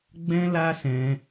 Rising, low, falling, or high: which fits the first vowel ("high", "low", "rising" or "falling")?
high